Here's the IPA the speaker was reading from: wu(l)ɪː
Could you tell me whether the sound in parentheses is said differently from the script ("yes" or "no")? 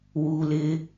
no